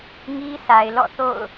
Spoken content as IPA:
ŋi˦sʰa˨ɪ̯lɔ̰˦˨θo̰˦˨ʊ̯

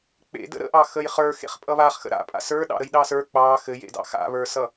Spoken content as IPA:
k͡pḛdə̰ ɾə̰ʔɑ xəjχə˞ xḛχpʼʌβaχxə̰ ɾa̰pʼa̰ sə˞ɗɑ̰ɾəj ɗɑsə˞ k͡pɑ xɘjḛdɑ̰ xa̰βə˞sʌ

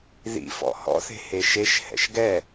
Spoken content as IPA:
ðḭfɔ̰ hɔ̰θe̤ heʃeʃ hɛ̰ʃɡɛ

